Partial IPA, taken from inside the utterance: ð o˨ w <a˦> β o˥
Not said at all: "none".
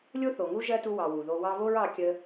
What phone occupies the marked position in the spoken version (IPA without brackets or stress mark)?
ɑ˦